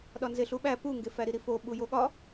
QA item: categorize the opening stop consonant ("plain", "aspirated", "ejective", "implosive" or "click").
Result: implosive